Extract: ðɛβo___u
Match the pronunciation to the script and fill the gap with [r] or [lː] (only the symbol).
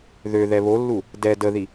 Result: lː